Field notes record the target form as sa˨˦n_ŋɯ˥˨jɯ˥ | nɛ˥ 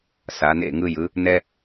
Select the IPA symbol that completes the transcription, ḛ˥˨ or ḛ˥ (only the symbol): ḛ˥˨